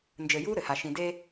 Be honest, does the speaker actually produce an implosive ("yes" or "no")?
no